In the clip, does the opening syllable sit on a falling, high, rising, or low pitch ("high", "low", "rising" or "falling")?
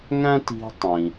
high